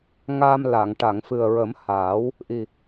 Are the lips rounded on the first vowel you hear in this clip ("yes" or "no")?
no